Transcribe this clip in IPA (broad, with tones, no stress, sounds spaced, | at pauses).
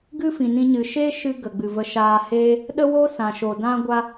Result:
ɡ ɨ˦ f ĩ˨ n ĩ˧ ɲ ɨ˨ ʃ e˦ ʃ ɨ˧ ɡ ə˨ ɡ͡b ɨ˨ v ə˧ ʃ aː˧ h eː˦ | ɗ ə˦ w o˦ s ã˨ ʃ o˨ d ã˦ ɡʷ a˦